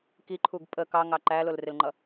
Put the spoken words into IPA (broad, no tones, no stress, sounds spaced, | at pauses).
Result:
k i ǃʰ u ɡ pʼ ə k ɑ ŋ ɑ ǃ æ l ʊ l r ɪ l ŋ͡ǃ ʌ